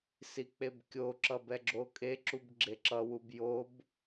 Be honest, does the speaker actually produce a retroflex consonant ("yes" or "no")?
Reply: no